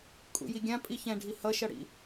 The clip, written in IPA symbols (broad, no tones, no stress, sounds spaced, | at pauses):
kʼ ṵ j i ɡʲ ã pʼ i ç ɛ̃ ɖʱ i h ʌ ʃ ʌ ɽ ḭ